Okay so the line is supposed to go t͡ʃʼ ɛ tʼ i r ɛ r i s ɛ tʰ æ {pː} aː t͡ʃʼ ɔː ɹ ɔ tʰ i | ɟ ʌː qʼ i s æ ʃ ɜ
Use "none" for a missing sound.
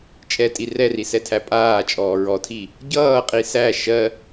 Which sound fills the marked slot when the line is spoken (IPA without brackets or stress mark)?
pʼ